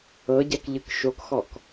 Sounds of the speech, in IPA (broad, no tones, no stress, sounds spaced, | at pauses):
ɤ ɟ ɛ k ʎ ɯ k ʃ o k x ɔ k